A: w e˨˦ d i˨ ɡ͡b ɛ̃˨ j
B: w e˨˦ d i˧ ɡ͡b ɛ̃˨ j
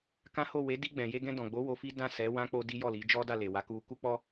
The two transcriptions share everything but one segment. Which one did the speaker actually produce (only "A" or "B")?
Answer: B